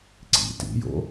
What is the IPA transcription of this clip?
ǀ ḭ t ḭ j o̰

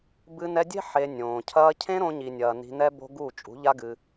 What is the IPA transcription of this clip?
b ɨ˧ n ɛ˧ dʲ e̤˦ ħ e˧ nʲ õː˨ cʰ ɐː˦ cʰ ẽ˦ ɾ õ˧ ɲ i˨ nʲ ɐː˨ n i̤˧ n ɛ˦ b o̤˦ ɡ u˦˨ t͡ʃʼ ṳ˨˦ ʎ a˦ ɡ ɨ˧

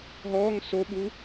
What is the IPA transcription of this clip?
ɦ ɔː ŋ s o ɓ u

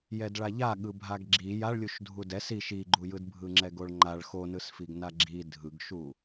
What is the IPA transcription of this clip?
j ɛ d ɭ a ʎ a ɠ ɯ bʱ a ɡ ɡ͡ǁ i j a ɭ lʲ u ʃ dʱ u d ɛ s i ʃ i ɡ͡ǃ u j ɯ d bʱ ɯ ŋ͡ǁ ɛ ɡ o ɭ ŋ͡ǃ a ɭ x o n ɯ s f i ɡ n a ɡ͡ǁ i dʱ ɯ ɡ ʃ u

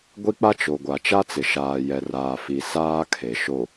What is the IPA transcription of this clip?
ɡʷ i˦ k͡p a˦ t͡ʃ o˨ ɡʷ a˨ t͡ʃ a˦ t͡s ɪ˨ ʃ aː˨ j ɛ˨ r aː˨ f i˨ s aː˦ kʰ e˨ ʃ o˨

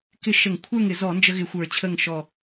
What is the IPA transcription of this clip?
k ɪ˥˨ ʃ ə˧˩˧ ŋ kʷʰ ə˞˥˨ ŋ ɪ˧˩˧ z ɔ˧˩˧ n d͡ʒ ə˦ ɣ ɪ˧˩˧ xʷ ə˞˧˩˧ t͡ɕʰ ə˥˨ ŋ ʃ ɔ˧˩

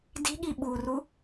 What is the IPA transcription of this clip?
d i̤ ɠ i ɓ u r u

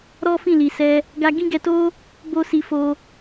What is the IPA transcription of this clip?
ɾ ɔ˦ f ĩ˦˨ l i˨ s ɛ˧ | ɡ a˦ ɡ ĩ˦ ɡ ɛ˧ t o˦ | b o˦ s i˧ f o˧

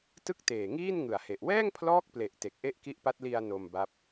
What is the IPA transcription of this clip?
t ɯ˥˩ k̚ t eː˨˩ ŋ iː˥˩ n ŋ ɯ˨˩ a̯ h e˨˩ ʔ w ɛː˥˩ ŋ pʰ l ɔː˦˥ k̚ p l e˨˩ ʔ t e˨˩ k̚ ʔ e˥˩ ʔ k i˦˥ ʔ p a˦˥ t̚ l i˧ a̯ n o˧ m b a˦˥ p̚

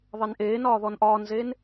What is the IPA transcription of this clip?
ðˤ e n ʔ eː n ɒː ð ɔ n ʔ ɒː n z eː n

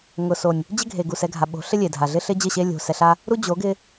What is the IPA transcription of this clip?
ŋ ʊ˨ s o˨ nʲ | d͡ʑ ɪ˦ ɡʱ e˨ ɡ u˨ s ɛ˧ ɡʱ a˨ ɓ o̤˨˦ ɬ ɪ˦ lʲ e˨ dʱ a˨ ɮ ɪ˦ ɬ ɪ˦ d͡ʑ ɪ˦˨ ɕ e˦ lʲ o̤˧ s ɛ˧ ɬ a˦ | ɾ u˦ d͡ʑ o˨˦ ɡ ɪ˧

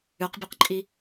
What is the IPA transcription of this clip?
ʉ q bʲ ɵ q ǃʼ i

